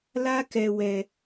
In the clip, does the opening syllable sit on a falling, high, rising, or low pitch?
high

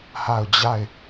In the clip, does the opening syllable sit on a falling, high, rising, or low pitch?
falling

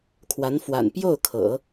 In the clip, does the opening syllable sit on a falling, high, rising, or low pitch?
rising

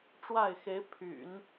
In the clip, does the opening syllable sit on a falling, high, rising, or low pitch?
falling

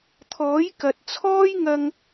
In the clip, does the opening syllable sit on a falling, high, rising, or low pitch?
rising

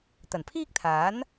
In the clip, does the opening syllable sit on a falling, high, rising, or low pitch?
low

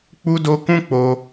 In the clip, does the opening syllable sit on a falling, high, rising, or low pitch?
high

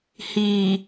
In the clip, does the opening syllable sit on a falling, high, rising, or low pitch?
low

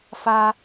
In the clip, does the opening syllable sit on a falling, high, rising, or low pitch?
high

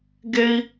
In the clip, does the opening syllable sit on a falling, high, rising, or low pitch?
high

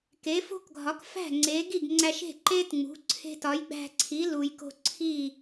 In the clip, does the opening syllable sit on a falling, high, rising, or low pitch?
rising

